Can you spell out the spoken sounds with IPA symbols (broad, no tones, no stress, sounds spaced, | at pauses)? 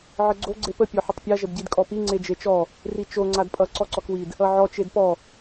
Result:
ʕ ə ɡ͡ǀ o ɡ͡ǀ e p ə pʲ ɔ ħ ə tˤ pʲ a ʒ ə d ɟ i d kʼ ɔ p i ŋ͡ǀ e d͡ʒ e t͡ʃ ɔ | r i t͡ʃ o ŋ͡ǀ a d pʼ ʌ ǀ ɔ ǀ ɔ k w i d | ʌ ʕ ɔ t͡ʃ e d p ɔ